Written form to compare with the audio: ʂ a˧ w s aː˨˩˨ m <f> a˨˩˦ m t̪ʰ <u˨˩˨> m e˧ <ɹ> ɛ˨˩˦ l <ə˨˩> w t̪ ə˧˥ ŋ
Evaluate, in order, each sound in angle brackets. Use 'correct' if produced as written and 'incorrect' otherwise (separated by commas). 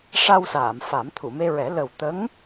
correct, correct, correct, correct